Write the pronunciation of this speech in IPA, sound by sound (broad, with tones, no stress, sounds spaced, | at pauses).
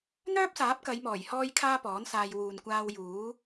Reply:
n̪ œː˥ p̚ s aː˨˥ p̚ k ɐ˨˧ j m ɔː˨˩ j h ɔː˥ j kʰ aː˥ p ɔː˨˥ n s aː˧ j w uː˨ n kʷ aː˧ w j uː˨˥